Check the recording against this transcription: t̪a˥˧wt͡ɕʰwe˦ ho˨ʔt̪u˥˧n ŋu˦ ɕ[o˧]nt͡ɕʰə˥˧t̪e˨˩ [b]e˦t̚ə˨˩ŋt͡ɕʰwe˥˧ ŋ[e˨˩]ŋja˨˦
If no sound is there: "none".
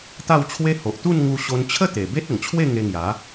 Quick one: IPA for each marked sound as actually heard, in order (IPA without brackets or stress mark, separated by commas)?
o˧, b, e˧